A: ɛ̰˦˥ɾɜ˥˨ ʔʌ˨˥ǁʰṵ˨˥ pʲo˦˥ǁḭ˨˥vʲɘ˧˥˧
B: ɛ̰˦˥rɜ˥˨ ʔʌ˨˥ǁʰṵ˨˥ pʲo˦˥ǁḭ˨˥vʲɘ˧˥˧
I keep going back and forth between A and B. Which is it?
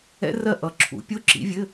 B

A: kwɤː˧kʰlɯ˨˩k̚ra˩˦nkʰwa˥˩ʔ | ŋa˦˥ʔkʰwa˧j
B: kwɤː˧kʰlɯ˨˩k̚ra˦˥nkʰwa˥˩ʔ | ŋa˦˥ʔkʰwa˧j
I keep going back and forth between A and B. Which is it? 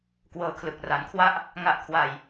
A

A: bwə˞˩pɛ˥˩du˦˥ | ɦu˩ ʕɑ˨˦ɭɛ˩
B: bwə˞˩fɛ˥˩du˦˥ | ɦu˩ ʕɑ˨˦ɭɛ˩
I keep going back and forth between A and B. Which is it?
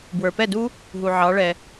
A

